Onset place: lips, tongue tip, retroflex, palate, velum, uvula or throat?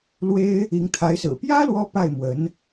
tongue tip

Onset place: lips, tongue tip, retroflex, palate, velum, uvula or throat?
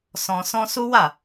tongue tip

